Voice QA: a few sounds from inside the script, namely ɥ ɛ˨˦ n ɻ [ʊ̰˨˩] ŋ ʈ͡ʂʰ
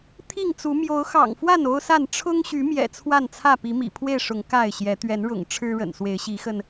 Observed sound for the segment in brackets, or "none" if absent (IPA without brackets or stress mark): ʊ̰˨˩